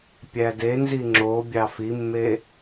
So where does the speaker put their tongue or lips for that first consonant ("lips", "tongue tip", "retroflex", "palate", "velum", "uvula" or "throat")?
lips